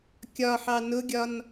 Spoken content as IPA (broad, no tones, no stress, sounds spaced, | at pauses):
kʲ ɒ ħ ɑ n ʊ ɡʲ ɒ n